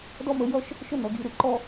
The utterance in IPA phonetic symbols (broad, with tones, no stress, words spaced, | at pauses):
dɔ˥mə˧jʌ˥ʃ | ʃə˥˧nʌ˩˧ɡi˧˩ ɾɯ˥ǃɔ˥